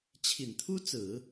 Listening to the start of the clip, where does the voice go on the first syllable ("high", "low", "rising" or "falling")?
low